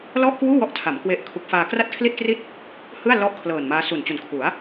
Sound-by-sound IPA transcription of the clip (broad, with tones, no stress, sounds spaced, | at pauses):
l ɔ˥˩ ʔ k w uː˥˩ w ɔ˦˥ ʔ tʰ a˩˦ m k w e˦˥ ʔ kʰ u˦˥ k̚ f aː˧ k r a˥˩ t̚ kʰ l i˥˩ t̚ k r i˥˩ t̚ | h ɯ˥˩ a̯ l ɔ˥˩ ʔ kʰ l ɤː˨˩ n m aː˦˥ s u˨˩ n t͡ɕ u˨˩ n kʰ u˩˦ a̯